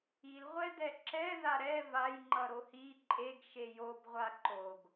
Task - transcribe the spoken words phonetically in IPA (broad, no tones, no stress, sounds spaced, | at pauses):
i l ʁʷ ɛ d ɛ ǁ ɛ ð a ɾ ɛ v a j ŋ͡ǃ ʌ ɾ o h i ǃʼ e ɡ ʃ e j o b ʁʷ a ǃ o ɡ